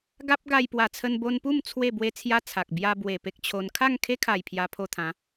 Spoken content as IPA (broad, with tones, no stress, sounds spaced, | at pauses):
ɡ a˦ p̚ ɡ a˧ j p w a˨˩ t͡sʰ ə˧ n b o˧ n p u˥˧ m t͡sʰ w e˥˧ b w e˦ t͡sʰ j a˦ t͡sʰ a˨ k̚ b j a˧ b w e˨˩ p e˦ k̚ t͡ɕʰ o˧ n kʰ a˥˧ ŋ kʰ e˦ kʰ a˨˩ j pʰ j a˧ pʰ o˧ t̪ʰ ã˨˦